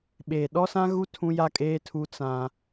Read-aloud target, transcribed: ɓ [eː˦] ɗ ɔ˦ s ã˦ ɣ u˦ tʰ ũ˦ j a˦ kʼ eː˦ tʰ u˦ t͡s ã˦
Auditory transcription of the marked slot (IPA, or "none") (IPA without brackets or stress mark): eː˨